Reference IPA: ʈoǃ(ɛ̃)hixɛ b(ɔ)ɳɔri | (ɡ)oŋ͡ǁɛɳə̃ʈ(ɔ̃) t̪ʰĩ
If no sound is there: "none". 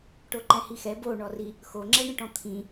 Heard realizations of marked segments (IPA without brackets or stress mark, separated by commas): ɛ̃, o, x, ɔ̃